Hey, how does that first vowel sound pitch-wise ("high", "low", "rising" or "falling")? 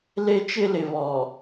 high